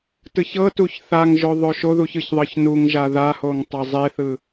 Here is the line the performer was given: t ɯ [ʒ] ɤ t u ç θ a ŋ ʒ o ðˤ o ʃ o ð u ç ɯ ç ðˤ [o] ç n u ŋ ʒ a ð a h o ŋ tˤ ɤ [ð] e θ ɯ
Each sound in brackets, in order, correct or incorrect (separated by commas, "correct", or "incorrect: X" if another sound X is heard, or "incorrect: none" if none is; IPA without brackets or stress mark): incorrect: ç, incorrect: ɤ, incorrect: zˤ